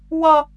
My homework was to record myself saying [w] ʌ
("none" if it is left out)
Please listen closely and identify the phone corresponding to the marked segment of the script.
w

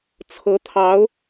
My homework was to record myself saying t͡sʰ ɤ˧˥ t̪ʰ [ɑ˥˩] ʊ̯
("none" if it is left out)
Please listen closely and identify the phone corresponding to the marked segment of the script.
ɑ˧˥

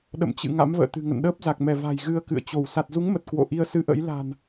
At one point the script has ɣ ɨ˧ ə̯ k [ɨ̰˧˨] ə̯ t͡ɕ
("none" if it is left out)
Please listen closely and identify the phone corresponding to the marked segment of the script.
ɨ̰˧˨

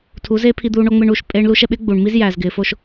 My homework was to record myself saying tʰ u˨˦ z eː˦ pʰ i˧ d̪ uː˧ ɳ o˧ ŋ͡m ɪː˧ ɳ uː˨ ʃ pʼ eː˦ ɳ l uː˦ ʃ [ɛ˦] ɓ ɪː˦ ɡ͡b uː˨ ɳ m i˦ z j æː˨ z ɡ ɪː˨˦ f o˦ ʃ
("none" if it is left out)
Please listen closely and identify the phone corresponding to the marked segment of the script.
ɛ˨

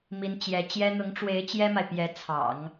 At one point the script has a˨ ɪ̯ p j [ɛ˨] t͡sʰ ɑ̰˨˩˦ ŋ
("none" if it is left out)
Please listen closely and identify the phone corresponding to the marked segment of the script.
ɛ˧˥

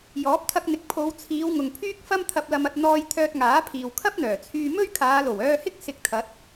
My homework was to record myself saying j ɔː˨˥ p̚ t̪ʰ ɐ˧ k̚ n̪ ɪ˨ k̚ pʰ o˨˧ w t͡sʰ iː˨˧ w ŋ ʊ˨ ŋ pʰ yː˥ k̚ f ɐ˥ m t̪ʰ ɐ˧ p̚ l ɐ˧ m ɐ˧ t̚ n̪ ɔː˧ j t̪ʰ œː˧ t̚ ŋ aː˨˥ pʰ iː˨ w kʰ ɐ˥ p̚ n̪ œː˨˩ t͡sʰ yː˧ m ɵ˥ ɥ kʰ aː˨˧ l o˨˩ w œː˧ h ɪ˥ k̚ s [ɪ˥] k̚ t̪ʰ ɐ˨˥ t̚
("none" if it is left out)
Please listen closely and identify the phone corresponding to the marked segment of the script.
ɪ˧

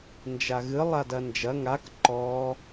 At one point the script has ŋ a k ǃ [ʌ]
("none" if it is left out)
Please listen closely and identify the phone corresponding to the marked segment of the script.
ɔ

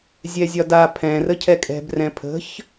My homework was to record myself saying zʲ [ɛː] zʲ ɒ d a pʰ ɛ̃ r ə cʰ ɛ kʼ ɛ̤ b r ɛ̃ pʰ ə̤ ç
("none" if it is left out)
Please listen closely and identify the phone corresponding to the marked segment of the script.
ɛ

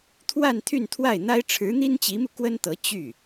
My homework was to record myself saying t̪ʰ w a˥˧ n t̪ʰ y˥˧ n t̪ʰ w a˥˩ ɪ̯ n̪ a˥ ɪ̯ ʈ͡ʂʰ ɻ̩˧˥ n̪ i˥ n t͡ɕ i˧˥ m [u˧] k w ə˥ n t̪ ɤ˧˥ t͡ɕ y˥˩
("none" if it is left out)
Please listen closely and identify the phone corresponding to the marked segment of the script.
u˧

